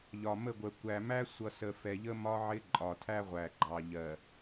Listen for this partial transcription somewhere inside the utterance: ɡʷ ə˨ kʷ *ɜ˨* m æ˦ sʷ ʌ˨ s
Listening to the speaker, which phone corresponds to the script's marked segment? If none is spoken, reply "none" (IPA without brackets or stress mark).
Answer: æ˨